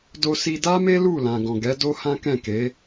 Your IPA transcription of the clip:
d o˧ s i˧ d a˦ m e˦ l u˦˨ l ã˨ ɡ ɔ̃˨ ɡ ɛ˨˦ d o˦ h ã˦ k ɛ̃˦˨ k e˨˦

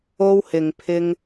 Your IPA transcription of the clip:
o˧ w h ɪ˨ ŋ pʰ ɪ˧ ŋ

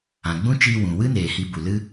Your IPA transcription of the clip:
ã˨ ɡ͡b ũ˦ t͡ʃ iː˧ w ũ˨ w ɨ˦ n eː˨ h i˧ b u˨ l ɨ˦

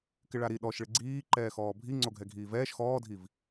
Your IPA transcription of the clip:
k ɪ ɭ a ɾ i ɗ ɔ ʃ ɭ ɪ ɡ͡ǀ iː ǃ ɛː x ɔː bʱ i ŋ͡ǀ o ɡʱ ɛ ɡʱ iː v ɛː ʃ x ɔː dʱ i v

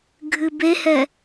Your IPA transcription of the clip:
ɡʱ ɨ b e h ɛ

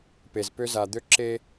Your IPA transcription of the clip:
p e˨ z p ø˦ z a˨ d̪ ø˦ ǁ e˦

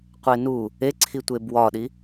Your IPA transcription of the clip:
qʷ e n u | e ǀʰ i tʷ e b w ɒ ɗ i

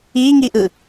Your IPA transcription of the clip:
i ŋ i ʔ ɯ

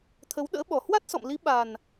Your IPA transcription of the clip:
t̪ʰ ə˨˦ w ɗ ə̰ː˧˥ ɓ ɔ˨˩ h w a˦˥ t̚ s ɔ̰˧˨ m l i˨˦ ɓ a˨˩ n

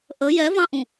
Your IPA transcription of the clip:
ʔ ə j ɛ v ɑ̃ ʔ ũ

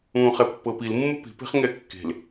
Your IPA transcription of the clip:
ũː χ ɛ pː ɤ p i l mː u p i̤ p e̤ χ ŋ ɛ kː e̤ l

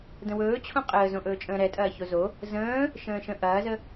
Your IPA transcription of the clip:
d ə̃ w ɵː t͡ɕʰ õ qʼ əː z õ ʔ ɵː t͡ʃʼ ə̃ː ɾ ɛ tʼ ɐː ç o z o | z ə̃ː | ʃ ə̃ː ʃ ə̃ ʔ ɐː z ə

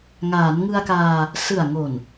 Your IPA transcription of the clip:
ŋ aː˩˦ n ŋ ɯ˧ a̯ k aː˧ | s ɯ˨˩ a̯ ŋ o˨˩ n

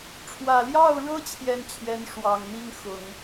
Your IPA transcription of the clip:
ʈ͡ʂʰ w ä˨˩ l j ɑ˥˩ ʊ̯ ɻ ɤ˥ t͡ɕʰ j ɛ˥˩ n t͡ɕʰ ɥ ɛ˧˥ n ʂ w ɑ˨˩ ŋ n̪ i˥˩ ŋ x ʊ˨˩˦ ŋ

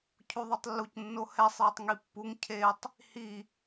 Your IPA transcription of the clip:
cʰ u ðˤ u tˤ lː u c nː o h ɛ sˤ j ʊ tˤ ŋ i pː u ŋ cʰ e tˤ | h i

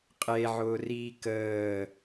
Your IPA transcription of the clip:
qʼ e ʕ ʊː r iː k əː

